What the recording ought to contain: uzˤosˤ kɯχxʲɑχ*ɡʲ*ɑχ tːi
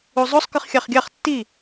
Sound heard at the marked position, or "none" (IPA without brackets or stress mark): ɡʲ